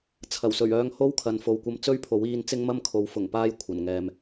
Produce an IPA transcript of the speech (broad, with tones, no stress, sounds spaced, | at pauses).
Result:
t͡sʰ ɐ˨˩ w s ɵ˨˩ ɥ œː˧ ŋ h o˥ w kʰ ɐ˨ n f o˨ w kʷ ɐ˧ m t͡s ɵ˥ ɥ pʰ o˨˥ w iː˧ n t͡s ɪ˥ ŋ m ɐ˥ m kʰ o˨˥ w f ʊ˨˩ ŋ p aː˧ j kʷʰ ɐ˨˩ n ŋ ɛː˨ m